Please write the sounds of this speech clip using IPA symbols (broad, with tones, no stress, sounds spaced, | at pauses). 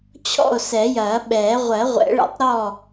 t͡ɕʰ ɔ̰˥˨ o̯ s ɛ˨˩˦ j ɐː˨˩˦ ɓ ɛː˨˩˦ ʁʷ ɜ˨˩˦ ʁʷ ɛ̰˨˩˦ ɭ ɛ̰˨˩˦ tˤ ɾ ɔ˥˨